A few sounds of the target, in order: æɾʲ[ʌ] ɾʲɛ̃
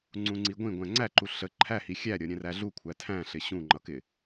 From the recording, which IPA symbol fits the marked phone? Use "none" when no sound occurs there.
ʌ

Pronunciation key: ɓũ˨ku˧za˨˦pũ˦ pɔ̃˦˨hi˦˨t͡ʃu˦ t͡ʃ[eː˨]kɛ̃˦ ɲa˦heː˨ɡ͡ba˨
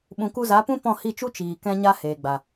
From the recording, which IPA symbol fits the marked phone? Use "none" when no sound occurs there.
iː˨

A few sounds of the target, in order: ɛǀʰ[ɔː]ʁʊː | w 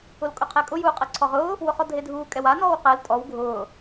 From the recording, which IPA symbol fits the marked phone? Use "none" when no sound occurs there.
ɔ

